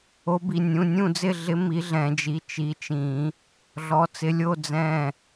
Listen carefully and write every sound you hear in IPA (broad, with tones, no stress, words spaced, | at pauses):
o˨˦bi˩˧˩ nʲũ˩˧˩nʲũ˦˨d͡zɪ˦˨ɮɪ˨˦ mi˨˦ɮɛ̃˨˩˦d͡ʒi˩˧˩ t͡ʃi˨˦t͡ʃĩ˨˩˦ | ɮɔ˨˦t͡sɪ˨˦lʲo˧˥˧ d͡zɛ̃˦˨